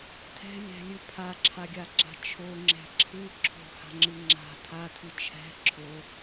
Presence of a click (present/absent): present